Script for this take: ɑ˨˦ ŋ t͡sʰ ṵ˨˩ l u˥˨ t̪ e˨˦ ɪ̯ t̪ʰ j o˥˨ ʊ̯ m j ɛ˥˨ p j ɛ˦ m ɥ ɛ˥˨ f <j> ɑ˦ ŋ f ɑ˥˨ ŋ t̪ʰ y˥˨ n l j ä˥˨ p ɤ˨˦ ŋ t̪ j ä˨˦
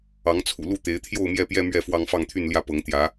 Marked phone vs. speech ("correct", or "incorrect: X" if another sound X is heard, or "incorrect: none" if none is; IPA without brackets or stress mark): incorrect: w